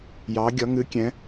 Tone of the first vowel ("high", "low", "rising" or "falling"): rising